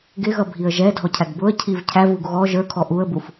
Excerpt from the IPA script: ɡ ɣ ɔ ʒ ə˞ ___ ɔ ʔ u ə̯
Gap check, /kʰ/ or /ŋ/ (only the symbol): kʰ